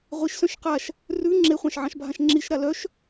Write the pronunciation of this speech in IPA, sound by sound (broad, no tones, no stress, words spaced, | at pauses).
ʁʷiʃsœ̃ʃ qaʃ | rʉ ŋ͡ǁeχʷɑ̃ʃ ʕɑ̃ʃbʱãʃŋ͡ǁiʃɾa lœʃ